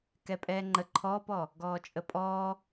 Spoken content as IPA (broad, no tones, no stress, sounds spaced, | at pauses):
k ɛ pʼ ɛː ŋ͡ǃ ə ǃʰ ɔː p ɔ | ɡ ɔː t͡ʃʼ ə pʼ ɔː